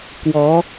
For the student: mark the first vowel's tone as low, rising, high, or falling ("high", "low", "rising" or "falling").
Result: rising